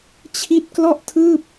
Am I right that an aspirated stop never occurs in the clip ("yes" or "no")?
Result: no